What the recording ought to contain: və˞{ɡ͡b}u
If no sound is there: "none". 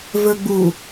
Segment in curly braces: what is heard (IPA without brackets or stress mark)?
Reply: ɡ͡b